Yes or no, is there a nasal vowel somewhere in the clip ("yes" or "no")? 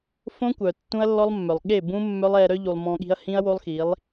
yes